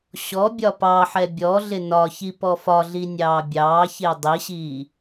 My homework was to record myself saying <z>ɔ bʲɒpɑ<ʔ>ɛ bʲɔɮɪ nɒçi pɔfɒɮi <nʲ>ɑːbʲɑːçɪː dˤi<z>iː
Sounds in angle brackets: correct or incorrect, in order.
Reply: incorrect: ɕ, incorrect: ħ, correct, incorrect: ɕ

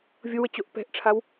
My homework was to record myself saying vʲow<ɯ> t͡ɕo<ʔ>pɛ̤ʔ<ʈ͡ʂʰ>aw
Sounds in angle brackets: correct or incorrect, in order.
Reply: incorrect: ə, correct, correct

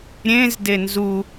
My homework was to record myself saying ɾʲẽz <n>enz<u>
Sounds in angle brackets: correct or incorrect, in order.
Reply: incorrect: d, correct

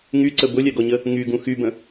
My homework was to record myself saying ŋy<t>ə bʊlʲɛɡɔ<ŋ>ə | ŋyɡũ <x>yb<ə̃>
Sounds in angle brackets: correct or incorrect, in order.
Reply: incorrect: ǀ, incorrect: ɲ, correct, correct

